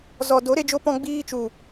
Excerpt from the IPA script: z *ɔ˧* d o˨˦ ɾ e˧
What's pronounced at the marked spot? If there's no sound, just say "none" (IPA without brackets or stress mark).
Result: ɔ˨